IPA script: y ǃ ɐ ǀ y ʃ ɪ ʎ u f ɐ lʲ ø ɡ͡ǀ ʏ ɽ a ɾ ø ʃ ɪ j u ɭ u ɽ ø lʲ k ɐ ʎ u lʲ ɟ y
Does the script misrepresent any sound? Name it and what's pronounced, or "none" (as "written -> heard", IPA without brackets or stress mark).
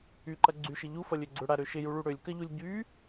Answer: ǀ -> ɡ͡ǀ